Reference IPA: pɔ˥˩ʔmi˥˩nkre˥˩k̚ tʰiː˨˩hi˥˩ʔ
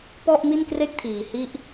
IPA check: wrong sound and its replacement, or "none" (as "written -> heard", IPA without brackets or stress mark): none